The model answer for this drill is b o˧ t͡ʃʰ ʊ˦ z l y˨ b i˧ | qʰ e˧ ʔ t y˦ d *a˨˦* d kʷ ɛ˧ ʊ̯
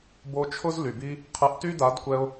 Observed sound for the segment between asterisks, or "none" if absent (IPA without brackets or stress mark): a˨˦